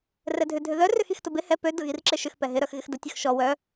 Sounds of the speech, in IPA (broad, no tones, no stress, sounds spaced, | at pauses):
r ɛ dʱ ʏ dʱ ʏ ð œ r ʏ x i x t ʊ b ɪ h ɛ p ø d ʊ ɣ i r ǁ ɪ ʃ ʏ x p ɛ ɦ ɪ ɾ œ x ɣ ɪ x d ə tʲ œ x ʃ ɔ w œ